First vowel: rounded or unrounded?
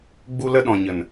rounded